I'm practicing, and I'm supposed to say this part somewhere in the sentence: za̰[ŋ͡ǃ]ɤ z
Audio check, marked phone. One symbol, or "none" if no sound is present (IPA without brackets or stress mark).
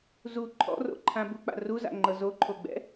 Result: ŋ͡ǃ